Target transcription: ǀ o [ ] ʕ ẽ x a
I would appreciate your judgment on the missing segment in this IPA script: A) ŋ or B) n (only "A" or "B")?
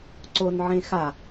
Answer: B